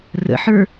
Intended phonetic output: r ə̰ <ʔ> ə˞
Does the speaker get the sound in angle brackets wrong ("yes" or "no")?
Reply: yes